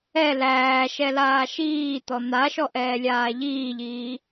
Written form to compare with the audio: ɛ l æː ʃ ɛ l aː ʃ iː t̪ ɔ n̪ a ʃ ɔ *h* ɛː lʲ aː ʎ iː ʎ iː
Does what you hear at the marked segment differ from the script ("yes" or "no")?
yes